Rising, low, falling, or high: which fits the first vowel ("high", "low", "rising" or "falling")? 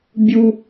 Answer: high